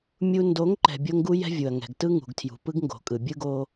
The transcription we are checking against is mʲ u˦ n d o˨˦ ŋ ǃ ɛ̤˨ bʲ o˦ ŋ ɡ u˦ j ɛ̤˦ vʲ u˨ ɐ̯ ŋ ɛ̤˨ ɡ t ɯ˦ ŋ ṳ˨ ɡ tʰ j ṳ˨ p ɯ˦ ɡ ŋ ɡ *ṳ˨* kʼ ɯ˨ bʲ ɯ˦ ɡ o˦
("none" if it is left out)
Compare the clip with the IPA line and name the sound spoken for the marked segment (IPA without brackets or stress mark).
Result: o̤˨